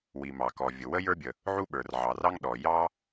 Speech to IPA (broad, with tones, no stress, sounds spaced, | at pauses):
w i˩ m ɑ˩ k ɔ˩ vʲ ʊ˩ w ə˧ j ə˞˧ bʲ ə˩ | ʕ u˧ ɓ ə˞˩ r ʕ ɑ˩ r ɑ˧ ŋ ɗ ɔ˩ j ɑ˧